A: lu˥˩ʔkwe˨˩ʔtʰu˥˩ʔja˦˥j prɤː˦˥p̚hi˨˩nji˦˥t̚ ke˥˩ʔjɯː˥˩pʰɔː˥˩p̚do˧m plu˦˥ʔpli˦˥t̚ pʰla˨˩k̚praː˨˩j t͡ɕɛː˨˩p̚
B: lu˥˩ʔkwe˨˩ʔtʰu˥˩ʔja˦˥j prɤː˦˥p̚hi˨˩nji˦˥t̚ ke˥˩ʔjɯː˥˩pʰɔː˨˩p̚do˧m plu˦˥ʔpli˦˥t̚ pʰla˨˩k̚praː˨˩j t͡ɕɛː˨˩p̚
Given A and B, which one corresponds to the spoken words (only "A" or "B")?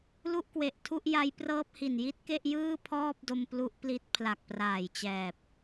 A